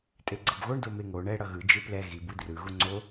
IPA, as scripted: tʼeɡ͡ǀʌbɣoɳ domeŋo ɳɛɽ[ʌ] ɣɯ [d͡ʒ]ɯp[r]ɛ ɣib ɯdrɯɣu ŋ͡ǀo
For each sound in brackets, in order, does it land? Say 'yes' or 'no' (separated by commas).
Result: yes, yes, no